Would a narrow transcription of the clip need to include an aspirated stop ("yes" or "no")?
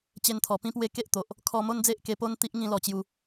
yes